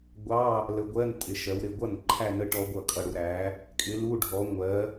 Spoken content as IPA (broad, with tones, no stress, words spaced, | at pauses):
ɡʷɑ˧˥˧ | lə˧ɡʷɜ˧˥˧n tʼɪ˨˥ʃɜ˨˥wɾɪ˧ ɡʷʌ˥˩n ǃʰæ˥˧nə˦˥ ʈɔ˦˥ɡʷʌ˥˩kʼʌ˧ ɽu˧ɾæ˨˥ | kʼɪ˨˥lu˧˥˧ɖʱɔ˨˥ŋʷɜ˨˥